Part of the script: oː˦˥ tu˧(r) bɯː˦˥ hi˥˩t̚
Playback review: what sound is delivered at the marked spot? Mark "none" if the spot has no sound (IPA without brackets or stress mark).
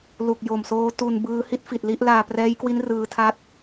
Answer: n